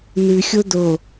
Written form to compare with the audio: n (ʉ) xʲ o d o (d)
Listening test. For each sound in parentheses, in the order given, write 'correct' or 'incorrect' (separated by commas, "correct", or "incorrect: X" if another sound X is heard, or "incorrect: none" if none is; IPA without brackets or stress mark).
correct, incorrect: none